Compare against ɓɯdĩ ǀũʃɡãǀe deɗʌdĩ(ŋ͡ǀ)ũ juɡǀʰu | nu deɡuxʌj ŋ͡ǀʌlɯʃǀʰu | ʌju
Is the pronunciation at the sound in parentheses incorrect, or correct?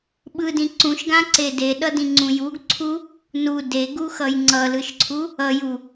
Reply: correct